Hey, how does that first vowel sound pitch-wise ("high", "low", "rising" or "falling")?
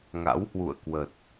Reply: rising